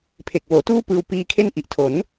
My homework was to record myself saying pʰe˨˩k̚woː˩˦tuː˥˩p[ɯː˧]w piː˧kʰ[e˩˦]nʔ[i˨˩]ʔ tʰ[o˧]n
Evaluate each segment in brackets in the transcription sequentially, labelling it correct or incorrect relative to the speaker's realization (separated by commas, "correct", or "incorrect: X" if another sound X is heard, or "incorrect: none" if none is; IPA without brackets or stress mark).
correct, incorrect: e˥˩, correct, incorrect: o˩˦